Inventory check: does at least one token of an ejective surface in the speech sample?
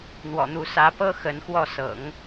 no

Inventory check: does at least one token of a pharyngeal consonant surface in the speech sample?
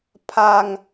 no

